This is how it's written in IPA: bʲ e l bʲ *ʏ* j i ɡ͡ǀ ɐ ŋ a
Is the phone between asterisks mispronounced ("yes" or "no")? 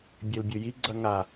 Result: yes